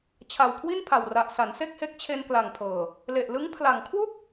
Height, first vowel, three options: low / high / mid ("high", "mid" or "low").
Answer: low